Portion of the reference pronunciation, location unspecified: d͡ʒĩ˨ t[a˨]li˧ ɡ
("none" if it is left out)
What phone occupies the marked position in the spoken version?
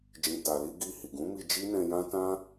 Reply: a˨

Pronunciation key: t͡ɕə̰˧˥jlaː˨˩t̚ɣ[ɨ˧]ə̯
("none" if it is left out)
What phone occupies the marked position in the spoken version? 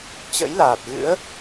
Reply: ɨ̰˧˥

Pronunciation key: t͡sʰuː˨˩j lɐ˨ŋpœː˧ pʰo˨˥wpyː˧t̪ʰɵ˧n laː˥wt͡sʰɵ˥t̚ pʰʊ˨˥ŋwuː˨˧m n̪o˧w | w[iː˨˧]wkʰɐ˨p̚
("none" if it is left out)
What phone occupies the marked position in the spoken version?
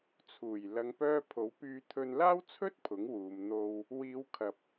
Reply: iː˨˧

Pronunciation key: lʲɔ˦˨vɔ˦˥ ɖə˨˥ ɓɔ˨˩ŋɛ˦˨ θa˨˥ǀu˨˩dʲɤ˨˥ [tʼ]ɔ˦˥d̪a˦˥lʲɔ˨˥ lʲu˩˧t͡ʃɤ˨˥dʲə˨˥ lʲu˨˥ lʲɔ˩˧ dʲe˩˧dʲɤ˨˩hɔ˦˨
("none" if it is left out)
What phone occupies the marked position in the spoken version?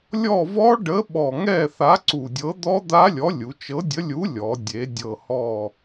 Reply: d̪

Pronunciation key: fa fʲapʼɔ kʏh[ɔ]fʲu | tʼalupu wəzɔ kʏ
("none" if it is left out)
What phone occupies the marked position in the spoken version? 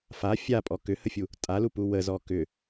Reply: ə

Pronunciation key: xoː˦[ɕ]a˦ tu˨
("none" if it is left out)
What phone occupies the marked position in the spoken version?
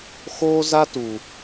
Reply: z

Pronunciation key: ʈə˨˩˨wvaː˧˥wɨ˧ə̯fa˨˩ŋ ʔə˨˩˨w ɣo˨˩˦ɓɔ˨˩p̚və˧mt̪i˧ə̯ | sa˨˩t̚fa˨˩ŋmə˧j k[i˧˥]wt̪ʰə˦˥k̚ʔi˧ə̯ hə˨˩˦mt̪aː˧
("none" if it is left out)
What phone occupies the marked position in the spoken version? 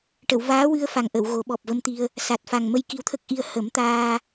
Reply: i˧˥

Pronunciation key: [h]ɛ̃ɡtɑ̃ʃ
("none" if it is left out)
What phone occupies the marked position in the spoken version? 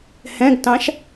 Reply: h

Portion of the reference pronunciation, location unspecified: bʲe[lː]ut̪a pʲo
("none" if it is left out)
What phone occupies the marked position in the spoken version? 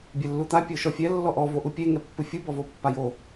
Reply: lː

